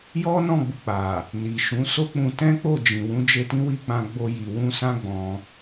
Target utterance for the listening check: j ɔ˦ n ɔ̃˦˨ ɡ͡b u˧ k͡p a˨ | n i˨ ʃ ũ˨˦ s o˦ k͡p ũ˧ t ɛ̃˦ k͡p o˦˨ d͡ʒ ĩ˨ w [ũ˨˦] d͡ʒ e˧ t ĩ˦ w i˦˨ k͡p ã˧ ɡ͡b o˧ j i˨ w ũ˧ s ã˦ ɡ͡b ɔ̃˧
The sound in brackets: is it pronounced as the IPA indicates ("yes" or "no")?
yes